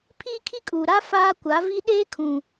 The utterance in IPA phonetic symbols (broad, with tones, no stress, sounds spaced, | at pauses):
pʰ iː˦ kʰ i˦ kʼ uː˨ ɾ a˦ f aː˦ kʷ a˨˦ v i˦ ɗ eː˦ kʰ ũ˨